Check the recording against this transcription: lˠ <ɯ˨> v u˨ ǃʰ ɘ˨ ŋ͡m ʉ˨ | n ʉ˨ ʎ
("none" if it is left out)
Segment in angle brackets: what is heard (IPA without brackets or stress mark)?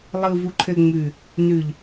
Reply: ɯ˨